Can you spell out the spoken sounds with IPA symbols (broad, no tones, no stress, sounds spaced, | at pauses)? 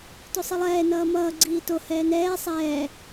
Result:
t o sˤ i lˠ ɛː n ʌː m ʌː ɡ͡ǀ iː t o h ɛː n ɛː sˤ ɛː